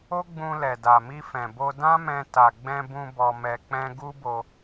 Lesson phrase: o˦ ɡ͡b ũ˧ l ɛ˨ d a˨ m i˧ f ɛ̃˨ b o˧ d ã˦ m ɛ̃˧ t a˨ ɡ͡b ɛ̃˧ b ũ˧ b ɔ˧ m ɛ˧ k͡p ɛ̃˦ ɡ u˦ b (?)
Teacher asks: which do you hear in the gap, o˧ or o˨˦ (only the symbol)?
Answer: o˧